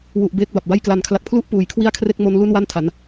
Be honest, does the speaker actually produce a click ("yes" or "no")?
no